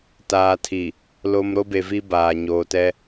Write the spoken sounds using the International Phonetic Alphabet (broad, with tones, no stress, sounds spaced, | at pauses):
t aː˨ tʰ i˨ | l o˨ m ɾ o˦ b e˨ v i˦ b aː˨ ɲ oː˨ t ɛ˦